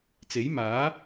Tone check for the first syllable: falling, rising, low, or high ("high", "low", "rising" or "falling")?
rising